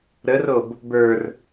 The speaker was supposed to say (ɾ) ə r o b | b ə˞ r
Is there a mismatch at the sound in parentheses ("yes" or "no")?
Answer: no